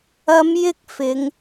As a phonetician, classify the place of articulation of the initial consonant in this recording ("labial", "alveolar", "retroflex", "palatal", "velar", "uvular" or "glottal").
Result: labial